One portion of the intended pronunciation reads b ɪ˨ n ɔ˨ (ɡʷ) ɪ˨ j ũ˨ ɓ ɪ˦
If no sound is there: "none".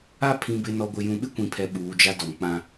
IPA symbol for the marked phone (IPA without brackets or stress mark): ɡʷ